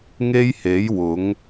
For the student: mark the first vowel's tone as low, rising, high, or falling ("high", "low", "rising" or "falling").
high